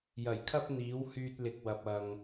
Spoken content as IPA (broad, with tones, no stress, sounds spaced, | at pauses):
j ɐ˨˩ j kʰ ɐ˥ p̚ n̪ iː˨˥ w h yː˧ t̚ l ɪ˨ k̚ w ɐ˨ p̚ ɐ˨ ŋ